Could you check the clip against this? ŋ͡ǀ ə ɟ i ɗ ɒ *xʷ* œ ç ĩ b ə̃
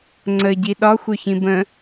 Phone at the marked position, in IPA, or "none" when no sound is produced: xʷ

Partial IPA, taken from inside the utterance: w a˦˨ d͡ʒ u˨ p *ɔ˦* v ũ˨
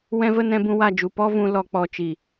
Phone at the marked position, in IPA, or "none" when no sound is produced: ɔ˧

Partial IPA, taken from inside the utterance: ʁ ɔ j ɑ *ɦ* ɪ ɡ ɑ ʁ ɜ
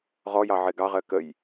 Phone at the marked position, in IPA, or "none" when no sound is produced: ʕ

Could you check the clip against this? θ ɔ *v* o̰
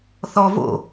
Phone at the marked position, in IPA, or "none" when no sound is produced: v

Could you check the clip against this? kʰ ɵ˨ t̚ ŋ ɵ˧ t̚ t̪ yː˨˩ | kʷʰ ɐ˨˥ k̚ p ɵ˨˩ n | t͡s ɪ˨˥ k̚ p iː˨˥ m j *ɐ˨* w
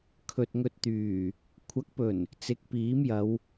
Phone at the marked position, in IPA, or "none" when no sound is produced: ɐ˨˧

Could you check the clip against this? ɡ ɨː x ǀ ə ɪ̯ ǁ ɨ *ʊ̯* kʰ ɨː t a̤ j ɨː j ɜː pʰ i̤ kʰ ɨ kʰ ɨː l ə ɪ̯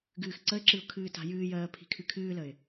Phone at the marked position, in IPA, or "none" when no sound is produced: ʊ̯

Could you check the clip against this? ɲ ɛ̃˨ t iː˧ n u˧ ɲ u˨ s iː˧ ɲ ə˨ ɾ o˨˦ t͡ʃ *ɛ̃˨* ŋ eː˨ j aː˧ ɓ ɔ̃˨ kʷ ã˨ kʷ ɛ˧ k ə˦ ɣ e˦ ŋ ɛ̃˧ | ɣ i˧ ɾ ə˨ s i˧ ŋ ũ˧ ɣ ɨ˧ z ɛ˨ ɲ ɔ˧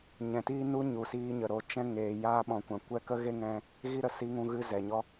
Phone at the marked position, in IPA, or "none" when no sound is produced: ɛ̃˦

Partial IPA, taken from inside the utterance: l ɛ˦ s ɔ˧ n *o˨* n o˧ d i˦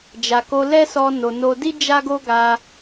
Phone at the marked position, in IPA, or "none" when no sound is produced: o˨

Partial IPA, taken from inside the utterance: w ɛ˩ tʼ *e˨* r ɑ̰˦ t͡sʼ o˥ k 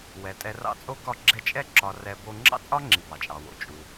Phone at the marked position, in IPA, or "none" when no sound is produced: ɛ˨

